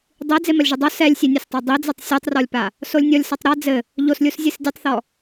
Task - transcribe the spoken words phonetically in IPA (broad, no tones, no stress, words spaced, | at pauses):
dˤi d͡zemɐlʲʒɨdˤo sɛlʲsʲenʲastˤe dˤid͡zɛtˤ sʲotˤrɔlʲpa | solʲnʲɔlʲsɐtˤ ɾa d͡zɘ | ʎoslʲus zʲɨsdʲɘtˤθɔ